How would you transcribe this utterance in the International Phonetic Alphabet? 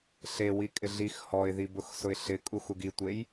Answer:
ɬ e w i kʼ ɪ ɮ i x h ɔ ɪ̯ ð i b ʊ x s ʊ ɪ̯ ɬ ɪ kʼ u x u ɡ i tʷ e j

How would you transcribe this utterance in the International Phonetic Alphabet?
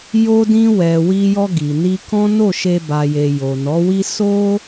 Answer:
j o˧ d ĩ˧ w ɛ˨ w i˧ j ɔ˧ ɡ i˨ n i˧ k ɔ̃˦ n o˦˨ ʃ e˧ b a˨ j e˨ j o˨ n ɔ˨˦ w i˦ s o˦

